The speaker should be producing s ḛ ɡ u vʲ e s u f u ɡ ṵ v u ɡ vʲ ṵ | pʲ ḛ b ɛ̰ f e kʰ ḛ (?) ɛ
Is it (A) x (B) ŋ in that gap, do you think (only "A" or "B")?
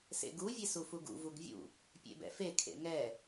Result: B